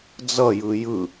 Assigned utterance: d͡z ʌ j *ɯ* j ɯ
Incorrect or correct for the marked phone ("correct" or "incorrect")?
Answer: correct